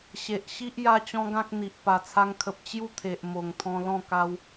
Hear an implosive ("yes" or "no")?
no